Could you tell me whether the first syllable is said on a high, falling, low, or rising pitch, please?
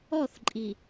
falling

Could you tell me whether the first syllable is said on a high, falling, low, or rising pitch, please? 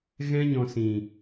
high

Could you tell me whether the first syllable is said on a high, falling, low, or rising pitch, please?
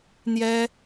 high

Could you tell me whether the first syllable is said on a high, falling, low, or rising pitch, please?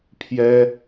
high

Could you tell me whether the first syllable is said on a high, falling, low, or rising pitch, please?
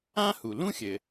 high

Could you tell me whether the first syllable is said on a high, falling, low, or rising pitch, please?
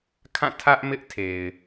falling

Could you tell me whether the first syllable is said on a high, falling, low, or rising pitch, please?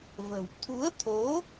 low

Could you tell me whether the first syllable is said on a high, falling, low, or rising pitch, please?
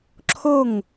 falling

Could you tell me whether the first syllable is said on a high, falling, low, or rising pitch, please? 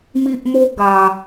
high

